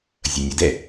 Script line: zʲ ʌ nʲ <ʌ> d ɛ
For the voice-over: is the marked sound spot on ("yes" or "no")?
yes